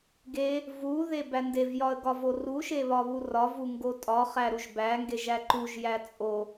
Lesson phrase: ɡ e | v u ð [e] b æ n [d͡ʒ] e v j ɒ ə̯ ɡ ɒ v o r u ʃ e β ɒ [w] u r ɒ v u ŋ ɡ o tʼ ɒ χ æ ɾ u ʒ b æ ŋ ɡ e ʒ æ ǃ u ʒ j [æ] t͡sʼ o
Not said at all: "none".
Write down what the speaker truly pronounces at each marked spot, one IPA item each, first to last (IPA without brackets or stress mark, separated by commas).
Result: e, d, β, æ